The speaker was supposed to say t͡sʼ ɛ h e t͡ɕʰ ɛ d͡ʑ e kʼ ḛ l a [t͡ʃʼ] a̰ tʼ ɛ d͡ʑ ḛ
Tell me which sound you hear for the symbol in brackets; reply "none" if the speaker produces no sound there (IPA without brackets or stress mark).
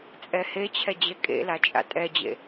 t͡ʃʼ